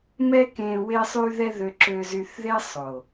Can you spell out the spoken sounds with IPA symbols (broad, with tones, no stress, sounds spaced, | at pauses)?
m ɛ˦ k ẽ˧ w e˧ sˤ y˧ ð ɛ˧ ð ø˧ ǁ ø˧ z y˧ θ ð e˦ sˤ o˨